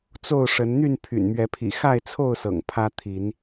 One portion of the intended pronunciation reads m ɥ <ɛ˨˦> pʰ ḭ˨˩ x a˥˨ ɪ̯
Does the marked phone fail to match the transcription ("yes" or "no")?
no